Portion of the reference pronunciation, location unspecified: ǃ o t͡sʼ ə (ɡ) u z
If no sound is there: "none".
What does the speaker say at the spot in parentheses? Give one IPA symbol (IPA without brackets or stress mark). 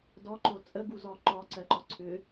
ɡ